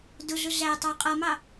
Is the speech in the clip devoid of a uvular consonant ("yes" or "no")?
no